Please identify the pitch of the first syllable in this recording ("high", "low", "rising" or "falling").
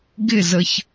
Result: falling